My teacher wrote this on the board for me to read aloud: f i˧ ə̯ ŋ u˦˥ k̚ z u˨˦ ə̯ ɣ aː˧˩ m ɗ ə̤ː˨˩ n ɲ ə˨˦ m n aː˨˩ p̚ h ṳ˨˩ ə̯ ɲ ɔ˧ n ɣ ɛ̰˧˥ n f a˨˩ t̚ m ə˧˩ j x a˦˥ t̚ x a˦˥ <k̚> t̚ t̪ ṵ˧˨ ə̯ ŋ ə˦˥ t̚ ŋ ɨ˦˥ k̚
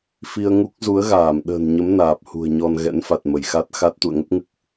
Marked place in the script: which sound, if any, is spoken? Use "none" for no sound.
none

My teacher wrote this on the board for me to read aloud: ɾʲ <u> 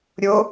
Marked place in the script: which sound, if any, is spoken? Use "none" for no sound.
o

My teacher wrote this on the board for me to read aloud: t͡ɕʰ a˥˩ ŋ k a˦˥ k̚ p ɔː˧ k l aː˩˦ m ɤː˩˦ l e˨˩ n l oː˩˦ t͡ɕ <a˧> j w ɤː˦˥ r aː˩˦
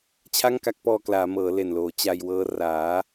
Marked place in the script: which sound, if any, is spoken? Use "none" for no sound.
a˧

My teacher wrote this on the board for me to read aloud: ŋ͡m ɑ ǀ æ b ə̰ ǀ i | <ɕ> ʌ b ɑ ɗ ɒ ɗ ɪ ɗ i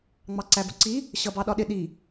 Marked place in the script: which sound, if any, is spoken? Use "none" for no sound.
ɕ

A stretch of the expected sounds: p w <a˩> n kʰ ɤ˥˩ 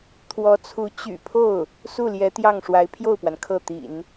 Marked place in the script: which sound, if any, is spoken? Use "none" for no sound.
a˩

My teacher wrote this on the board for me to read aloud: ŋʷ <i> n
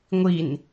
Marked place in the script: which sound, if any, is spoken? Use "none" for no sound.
i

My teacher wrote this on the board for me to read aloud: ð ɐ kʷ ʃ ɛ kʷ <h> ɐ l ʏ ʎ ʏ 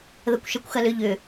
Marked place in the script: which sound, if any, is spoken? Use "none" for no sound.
x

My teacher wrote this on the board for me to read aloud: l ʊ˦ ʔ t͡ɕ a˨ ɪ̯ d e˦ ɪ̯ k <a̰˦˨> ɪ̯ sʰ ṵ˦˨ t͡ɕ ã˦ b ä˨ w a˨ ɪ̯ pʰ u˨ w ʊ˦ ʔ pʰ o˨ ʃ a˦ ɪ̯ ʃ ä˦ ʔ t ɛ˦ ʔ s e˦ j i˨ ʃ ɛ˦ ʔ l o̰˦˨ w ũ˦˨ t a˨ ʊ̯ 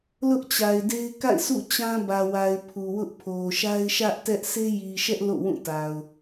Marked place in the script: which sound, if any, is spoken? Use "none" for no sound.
a̰˦˨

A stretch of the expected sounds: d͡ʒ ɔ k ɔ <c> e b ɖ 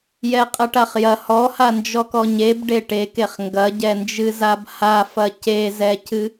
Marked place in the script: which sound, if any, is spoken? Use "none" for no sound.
ɲ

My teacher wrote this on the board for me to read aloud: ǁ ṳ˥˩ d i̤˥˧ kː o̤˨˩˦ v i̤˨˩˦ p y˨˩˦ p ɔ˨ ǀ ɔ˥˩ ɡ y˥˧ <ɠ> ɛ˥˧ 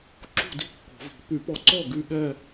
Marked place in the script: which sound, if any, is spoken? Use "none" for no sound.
ɠ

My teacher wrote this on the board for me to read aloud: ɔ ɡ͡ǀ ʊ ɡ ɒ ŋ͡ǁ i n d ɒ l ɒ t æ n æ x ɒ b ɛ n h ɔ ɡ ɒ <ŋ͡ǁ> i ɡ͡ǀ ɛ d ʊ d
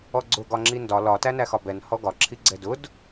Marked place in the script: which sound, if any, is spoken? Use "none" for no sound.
ǁʰ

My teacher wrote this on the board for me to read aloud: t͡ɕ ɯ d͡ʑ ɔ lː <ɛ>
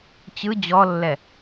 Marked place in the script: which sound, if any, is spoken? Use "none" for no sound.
ɛ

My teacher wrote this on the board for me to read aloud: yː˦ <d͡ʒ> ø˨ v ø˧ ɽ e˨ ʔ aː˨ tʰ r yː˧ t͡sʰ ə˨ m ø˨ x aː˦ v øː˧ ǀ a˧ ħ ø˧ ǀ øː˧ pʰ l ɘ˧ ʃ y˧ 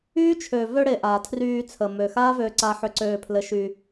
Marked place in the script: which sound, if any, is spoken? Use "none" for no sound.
t͡ʃʰ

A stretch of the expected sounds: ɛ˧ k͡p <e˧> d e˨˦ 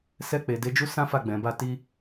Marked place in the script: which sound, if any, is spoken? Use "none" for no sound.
e˨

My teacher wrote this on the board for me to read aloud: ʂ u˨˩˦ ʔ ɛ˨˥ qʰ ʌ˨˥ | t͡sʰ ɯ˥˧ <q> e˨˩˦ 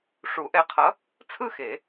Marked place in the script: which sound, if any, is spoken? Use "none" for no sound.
x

